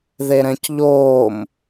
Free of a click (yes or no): yes